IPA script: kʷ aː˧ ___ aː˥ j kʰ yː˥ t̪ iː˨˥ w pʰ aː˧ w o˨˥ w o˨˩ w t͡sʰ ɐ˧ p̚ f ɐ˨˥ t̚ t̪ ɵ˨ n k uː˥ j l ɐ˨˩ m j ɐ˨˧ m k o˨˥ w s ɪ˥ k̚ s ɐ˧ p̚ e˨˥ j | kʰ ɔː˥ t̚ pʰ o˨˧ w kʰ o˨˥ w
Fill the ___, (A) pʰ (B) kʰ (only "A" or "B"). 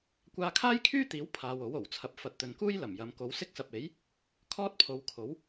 B